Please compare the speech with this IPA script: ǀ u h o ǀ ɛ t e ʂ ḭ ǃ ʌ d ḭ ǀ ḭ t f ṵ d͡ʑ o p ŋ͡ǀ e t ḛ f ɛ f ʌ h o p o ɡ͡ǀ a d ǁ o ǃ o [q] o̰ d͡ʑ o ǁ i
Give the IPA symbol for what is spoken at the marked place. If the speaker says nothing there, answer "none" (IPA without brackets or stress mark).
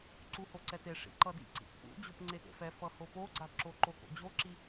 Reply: k